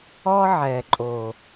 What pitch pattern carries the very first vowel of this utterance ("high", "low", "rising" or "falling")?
high